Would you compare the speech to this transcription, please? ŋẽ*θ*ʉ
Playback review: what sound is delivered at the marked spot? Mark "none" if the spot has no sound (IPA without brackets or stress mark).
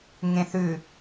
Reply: θ